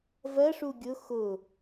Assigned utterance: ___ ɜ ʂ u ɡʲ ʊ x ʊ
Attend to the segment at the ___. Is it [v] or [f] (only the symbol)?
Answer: v